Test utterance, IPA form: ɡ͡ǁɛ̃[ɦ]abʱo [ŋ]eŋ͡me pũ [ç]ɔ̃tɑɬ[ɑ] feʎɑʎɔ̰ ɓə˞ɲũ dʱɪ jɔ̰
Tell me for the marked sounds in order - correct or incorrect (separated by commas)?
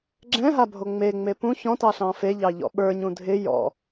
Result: correct, incorrect, correct, incorrect